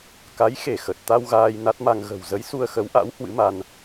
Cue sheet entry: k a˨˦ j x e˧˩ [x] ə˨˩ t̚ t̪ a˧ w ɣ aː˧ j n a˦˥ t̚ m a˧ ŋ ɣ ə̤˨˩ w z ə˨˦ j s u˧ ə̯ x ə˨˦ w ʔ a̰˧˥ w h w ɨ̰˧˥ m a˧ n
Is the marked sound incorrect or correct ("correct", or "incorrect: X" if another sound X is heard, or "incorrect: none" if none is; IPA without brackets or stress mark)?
correct